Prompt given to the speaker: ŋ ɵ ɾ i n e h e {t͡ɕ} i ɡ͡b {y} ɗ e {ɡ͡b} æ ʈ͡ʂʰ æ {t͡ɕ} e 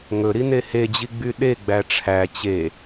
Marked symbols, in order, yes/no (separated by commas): no, yes, yes, yes